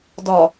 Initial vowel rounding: rounded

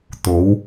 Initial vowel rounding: rounded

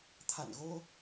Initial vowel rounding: unrounded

